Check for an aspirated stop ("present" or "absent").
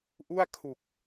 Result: present